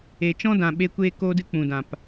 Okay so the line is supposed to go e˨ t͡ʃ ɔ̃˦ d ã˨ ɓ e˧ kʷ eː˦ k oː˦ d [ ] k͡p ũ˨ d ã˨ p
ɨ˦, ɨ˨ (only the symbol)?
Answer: ɨ˦